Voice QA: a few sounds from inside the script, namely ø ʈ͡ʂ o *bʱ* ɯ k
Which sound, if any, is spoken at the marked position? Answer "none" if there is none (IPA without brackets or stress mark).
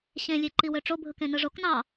bʱ